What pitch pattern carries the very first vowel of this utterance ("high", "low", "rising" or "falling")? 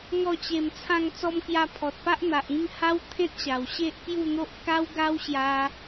falling